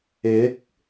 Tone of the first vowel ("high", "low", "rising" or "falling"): rising